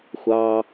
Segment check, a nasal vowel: absent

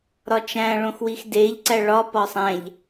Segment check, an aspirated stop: absent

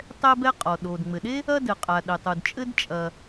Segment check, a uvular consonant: present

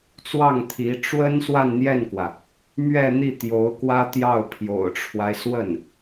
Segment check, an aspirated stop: present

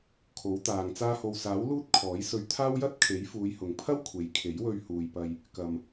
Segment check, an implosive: absent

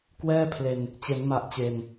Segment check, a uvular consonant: absent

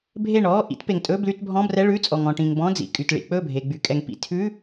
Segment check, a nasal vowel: present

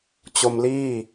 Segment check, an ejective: absent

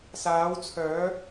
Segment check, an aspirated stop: present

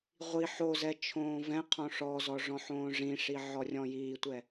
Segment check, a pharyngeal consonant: present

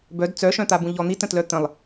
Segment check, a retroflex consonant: absent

